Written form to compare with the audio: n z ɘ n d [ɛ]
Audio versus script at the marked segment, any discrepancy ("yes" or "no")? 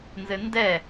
no